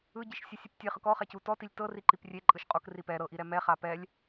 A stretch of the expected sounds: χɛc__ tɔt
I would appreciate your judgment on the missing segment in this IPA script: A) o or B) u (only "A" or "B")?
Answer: B